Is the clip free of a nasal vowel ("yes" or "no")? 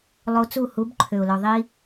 yes